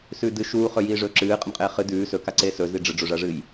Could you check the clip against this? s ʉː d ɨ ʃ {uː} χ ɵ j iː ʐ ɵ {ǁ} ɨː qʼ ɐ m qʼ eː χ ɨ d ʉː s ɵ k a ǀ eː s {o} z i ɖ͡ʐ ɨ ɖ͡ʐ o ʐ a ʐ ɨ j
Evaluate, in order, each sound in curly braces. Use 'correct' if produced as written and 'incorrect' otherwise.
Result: correct, correct, incorrect: ɵ

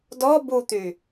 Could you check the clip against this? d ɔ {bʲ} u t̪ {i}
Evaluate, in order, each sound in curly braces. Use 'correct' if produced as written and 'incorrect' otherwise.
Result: incorrect: b, incorrect: y

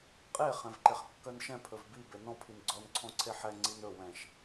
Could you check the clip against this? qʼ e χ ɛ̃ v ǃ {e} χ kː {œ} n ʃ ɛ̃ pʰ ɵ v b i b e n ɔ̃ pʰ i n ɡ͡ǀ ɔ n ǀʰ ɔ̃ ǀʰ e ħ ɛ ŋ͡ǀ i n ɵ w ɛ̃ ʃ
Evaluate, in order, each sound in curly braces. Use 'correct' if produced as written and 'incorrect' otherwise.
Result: correct, correct

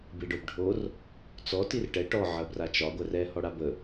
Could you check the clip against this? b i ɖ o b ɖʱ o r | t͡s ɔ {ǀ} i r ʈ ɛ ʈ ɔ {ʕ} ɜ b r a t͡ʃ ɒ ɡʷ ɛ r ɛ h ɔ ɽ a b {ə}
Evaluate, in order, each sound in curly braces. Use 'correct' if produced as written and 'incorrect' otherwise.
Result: incorrect: t, correct, correct

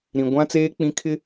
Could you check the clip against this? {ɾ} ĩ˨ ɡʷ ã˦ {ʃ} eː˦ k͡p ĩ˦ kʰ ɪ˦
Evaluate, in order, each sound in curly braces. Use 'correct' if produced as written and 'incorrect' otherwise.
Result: correct, incorrect: t͡s

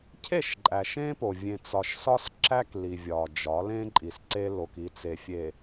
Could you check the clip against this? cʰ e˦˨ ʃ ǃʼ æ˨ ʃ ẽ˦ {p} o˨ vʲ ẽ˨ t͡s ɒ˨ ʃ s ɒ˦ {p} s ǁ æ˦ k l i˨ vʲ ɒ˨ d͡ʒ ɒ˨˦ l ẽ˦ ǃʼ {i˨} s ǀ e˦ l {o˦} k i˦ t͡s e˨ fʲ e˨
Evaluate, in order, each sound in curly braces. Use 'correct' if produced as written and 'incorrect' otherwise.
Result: correct, incorrect: none, correct, correct

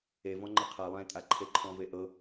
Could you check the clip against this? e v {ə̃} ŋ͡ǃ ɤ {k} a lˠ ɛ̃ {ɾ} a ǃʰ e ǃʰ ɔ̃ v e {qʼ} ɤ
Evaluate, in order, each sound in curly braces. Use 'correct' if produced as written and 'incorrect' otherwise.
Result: incorrect: ɔ̃, incorrect: qʰ, incorrect: tʼ, incorrect: ʔ

